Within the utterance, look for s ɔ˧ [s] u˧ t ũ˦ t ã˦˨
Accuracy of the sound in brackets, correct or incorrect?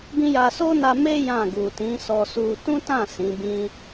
correct